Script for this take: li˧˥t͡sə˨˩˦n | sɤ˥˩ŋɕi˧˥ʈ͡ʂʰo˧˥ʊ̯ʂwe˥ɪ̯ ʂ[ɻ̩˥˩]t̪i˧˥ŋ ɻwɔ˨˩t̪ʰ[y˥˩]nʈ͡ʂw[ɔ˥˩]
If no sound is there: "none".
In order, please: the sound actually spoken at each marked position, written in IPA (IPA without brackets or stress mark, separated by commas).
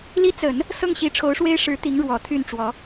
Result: ɻ̩˧˥, y˥˩, ɔ˧˥